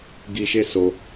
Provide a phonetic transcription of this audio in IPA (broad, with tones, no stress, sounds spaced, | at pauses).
ɡ i˧ ʃ e˦ s o˧